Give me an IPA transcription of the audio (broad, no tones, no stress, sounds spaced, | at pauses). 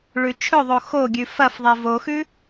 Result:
ɭ ʉ t͡ʃʰ ɵ ðˤ o x o ɡʲ ʉ f ɐ f ðˤ e v o x ʉ